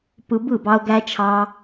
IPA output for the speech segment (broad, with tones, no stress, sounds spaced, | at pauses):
p ɯ˧ b ɯ˦˨ b ɑ˧ ʊ̯ ɡ æ˦ t͡ʃʰ ɑː˦